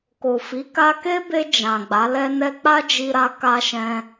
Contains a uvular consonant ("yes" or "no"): no